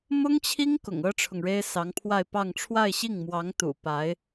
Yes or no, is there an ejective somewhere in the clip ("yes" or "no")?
no